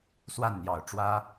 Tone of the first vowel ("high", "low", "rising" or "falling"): falling